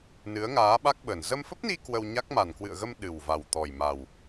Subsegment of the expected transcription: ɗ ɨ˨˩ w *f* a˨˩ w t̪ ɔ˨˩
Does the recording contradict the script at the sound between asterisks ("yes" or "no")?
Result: yes